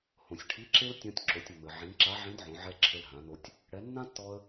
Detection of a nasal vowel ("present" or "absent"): present